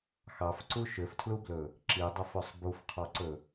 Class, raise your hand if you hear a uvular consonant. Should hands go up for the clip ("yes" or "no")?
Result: yes